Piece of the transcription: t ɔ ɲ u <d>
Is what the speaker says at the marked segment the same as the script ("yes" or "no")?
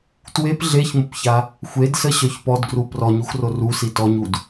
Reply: yes